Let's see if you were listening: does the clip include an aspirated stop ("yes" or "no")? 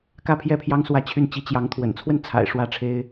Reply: yes